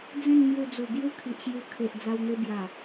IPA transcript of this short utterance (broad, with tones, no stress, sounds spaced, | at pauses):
d͡z ẽ˥˧ n m j u˧ d͡z u˨˩ b j u˦ kʰ i˨ ʔ ɕ j u˧ kʰ e˨ ʔ d͡z a˧ w n̪ e˧ b j a˨˩